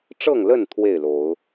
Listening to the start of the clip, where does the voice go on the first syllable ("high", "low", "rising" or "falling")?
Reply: falling